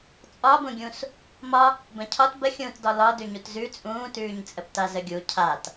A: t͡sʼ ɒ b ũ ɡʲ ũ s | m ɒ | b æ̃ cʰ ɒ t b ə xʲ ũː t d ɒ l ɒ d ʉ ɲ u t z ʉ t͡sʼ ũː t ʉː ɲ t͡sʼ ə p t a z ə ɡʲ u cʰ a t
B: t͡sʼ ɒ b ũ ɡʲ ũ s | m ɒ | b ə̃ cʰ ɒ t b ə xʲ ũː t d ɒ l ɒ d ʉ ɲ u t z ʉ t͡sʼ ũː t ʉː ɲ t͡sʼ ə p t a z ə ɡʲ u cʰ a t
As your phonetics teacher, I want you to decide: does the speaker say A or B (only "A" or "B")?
B